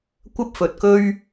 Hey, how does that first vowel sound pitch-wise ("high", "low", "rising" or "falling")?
high